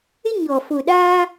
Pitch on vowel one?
high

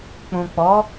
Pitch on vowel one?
low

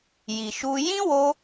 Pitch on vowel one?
low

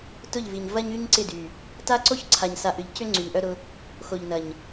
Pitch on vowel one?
falling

